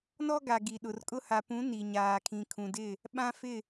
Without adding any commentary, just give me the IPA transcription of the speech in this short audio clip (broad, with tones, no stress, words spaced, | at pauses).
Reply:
nɔ˦ɡa˨ ɡi˨ɗʊ˨r kʼʊ˦ ha˨pũ˨˦ ni˨ɲaː˨kʰĩ˨ kʰũ˨dɪ˦˨ | ɓã˦fɪ˦˨